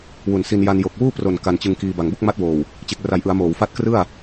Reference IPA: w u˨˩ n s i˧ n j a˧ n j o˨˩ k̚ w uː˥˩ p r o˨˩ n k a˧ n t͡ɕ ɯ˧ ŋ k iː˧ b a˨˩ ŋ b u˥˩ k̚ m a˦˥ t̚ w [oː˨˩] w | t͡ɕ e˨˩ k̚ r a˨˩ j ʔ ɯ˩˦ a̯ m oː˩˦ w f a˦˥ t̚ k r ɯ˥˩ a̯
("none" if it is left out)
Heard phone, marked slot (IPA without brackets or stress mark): oː˨˩